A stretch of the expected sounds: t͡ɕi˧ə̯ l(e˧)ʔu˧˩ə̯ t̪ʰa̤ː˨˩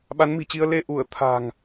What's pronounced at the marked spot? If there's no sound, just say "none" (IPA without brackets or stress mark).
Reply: e˧